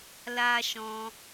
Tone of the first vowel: high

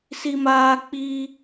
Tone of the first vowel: high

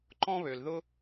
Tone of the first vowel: high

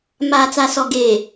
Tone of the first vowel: low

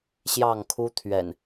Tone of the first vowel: falling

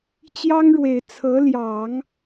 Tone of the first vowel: high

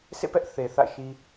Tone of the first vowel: falling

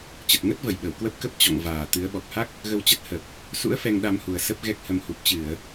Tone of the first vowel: low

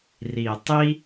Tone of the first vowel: low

